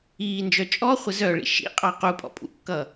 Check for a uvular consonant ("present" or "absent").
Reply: present